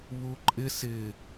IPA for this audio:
β u ǃʼ ɪ s ɪ

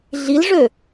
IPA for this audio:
ɮ i l ʐ ø

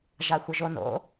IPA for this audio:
ʒ a xʷ ə ʒ o n o̰

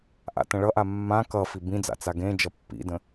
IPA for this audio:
ʔ a̰ t ə̃ ɭ ʌ ʔ a mː ã k ʌ f i b ĩ d͡z a̰ t͡s a ɡ ẽ d͡ʒ ʌ pː ḭ d ə̃

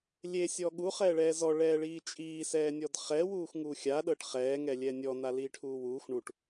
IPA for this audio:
lʲ e sʲ ɔ ɠ u χ ɛː ɭ ɛː z ɔ ɭ ɛː ɭ iː t͡ʃʼ iː s ɛː nʲ ɔ d χ ɛː w uː x ŋ uː xʲ a ɗ ɤ ʈ χ ɛː ŋ ɛ lʲ ɛː nʲ ɔ n a l iː ʈʰ uː w uː x ɳ u ʈ

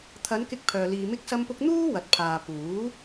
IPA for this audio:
t̪ʰ ɐ˨˧ n k ɪ˥ k̚ pʰ œː˧ l iː˧ m ɪ˥ k̚ s ɐ˥ m p ʊ˥ k̚ n̪ uː˥ w ɐ˨˥ t̚ pʰ aː˨ p uː˨˥

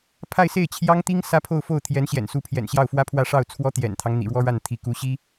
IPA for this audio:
pʰ a˥˧ ɪ̯ s e˥˩ ɪ̯ t͡ɕʰ j ɑ˥ ŋ t̪ i˥ ŋ s ä˥ pʰ o˥˧ ʊ̯ f o˥˩ ʊ̯ t̪ʰ j ɛ˧˥ n ɕ j ɛ̰˨˩ n s u˧˥ pʰ j ɛ̰˨˩ n ɕ j ɑ˥˩ ʊ̯ f w ä˥ pʰ w ä˥˧ ʂ ɑ˥˩ ʊ̯ t͡sʰ w ɔ˥ t̪ j ɛ̰˨˩ n t̪ʰ ɑ˦ ŋ n̪ ḭ˨˩ ɻ w ɔ˥ ɻ a˥˩ n t̪ʰ i˧˥ k u˧˥ ɕ i˥

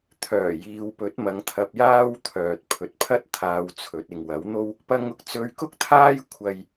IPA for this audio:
t̪ʰ œː˨˩ j iː˨ w p ɵ˨˥ t̚ m ɐ˨˧ ŋ t̪ʰ ɐ˧ p̚ j aː˥ w t̪ʰ œː˨ t̚ pʰ ɵ˨˥ t̚ pʰ ɐ˥ t̚ t̪ʰ aː˧ w t͡sʰ ɵ˨˥ t̚ ɪ˨ ŋ w ɐ˨˥ w n̪ o˥ w | p ɐ˧ ŋ ʊ˨ k̚ t͡s ɵ˧ ɥ k ʊ˥ k̚ t̪ʰ aː˥ j kʷʰ ɐ˧ j

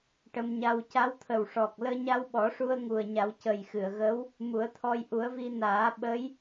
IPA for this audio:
ʈ ə˧ m ɲ a˧ w c a˧˥ w t̪ʰ ə˨˩ w ʂ ɔ˨˩ k̚ l əː˧ ɲ a˧ w ɓ ɔ˨˩˦ ʂ u˧ ə̯ ŋ u˨˩ ə̯ ɲ a˨˩˦ w c ə˨˩ j x ɨ˨˩˨ ə̯ ɣ ə˧˥ w | m u˨˩˦ ə̯ t̪ʰ ɔ˧ j ʔ u˨˩˦ ə̯ v i˧ n aː˨˩˦ ɓ ə˧˥ j

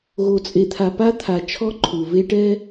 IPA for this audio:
ɣ o˨ t͡sʼ e˨ t̪ʰ a˨ p a˦ t̪ʰ a˨ t͡ʃʰ ɔ˦ ǃʰ u˨ v e˦ ʈ ɛ˦

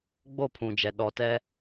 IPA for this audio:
ɡ͡b o˦˨ pʰ ũ˨ d͡ʒ ɛ˨ ɗ ɔ˨ t ɛ˦

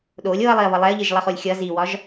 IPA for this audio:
ɗ o lʲ o ɐ̯ lˠ i ɐ̯ β ʌ lˠ ɛ ɐ̯ ʎ i ʒ lˠ ʌ χ o lʲ xʲ ʌ z i w ɒ ʒ

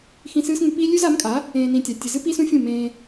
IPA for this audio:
x ĩ˧ s ɨː˦ s ŋ ʉ˧ p i˦ lʲ ʉ˦ z a˨˦ m kʼ a˨˦ | ẽː˧ n ĩ˧ tʲ a˨ tʲ ɨ˨ z ɨ˦ p i˦ s ũ˦ fʲ ũ˦˨ m ẽː˧

